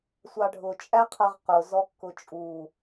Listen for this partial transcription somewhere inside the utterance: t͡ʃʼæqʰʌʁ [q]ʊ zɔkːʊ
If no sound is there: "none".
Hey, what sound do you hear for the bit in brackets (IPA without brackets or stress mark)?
q